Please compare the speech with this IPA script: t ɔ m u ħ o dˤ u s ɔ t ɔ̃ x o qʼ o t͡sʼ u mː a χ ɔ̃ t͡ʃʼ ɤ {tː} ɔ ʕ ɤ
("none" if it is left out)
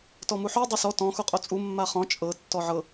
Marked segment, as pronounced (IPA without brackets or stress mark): tː